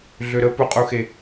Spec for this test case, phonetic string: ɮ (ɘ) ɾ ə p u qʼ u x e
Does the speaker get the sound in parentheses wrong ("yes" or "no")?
yes